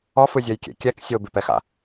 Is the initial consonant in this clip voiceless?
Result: yes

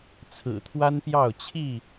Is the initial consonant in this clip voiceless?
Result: yes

